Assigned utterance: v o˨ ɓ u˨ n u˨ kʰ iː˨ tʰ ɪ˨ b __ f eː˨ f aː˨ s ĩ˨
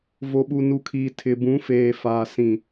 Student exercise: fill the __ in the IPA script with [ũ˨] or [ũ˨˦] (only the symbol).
ũ˨˦